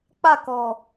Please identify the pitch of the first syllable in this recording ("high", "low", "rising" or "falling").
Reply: falling